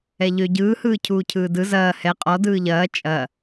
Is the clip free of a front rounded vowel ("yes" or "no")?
no